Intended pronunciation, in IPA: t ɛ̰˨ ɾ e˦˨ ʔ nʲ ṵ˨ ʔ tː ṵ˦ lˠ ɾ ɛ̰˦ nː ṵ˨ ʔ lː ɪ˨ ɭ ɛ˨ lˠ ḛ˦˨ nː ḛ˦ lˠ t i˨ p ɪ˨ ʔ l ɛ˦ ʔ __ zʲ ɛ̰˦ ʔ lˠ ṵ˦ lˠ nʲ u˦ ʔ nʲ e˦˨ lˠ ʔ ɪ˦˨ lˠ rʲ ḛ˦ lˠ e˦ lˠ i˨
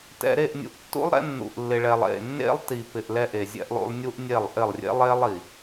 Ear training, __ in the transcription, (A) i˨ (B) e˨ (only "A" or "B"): B